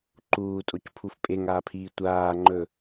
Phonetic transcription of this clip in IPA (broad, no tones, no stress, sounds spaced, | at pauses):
ǃ uː tʼ o c pʰ u f pʼ e ŋ aː pʰ iː tʷ aː ŋ͡ǃ ɵ